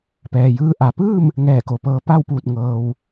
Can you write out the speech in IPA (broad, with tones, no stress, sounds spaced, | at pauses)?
p ɛː˩ j ɯː˧ ʔ a˩ p ɯː˥˨ m | ŋ ɛː˧˩ k o˩ p ɤː˧ p a˥˨ w p uː˧˩ t̚ ŋ ɤː˩ w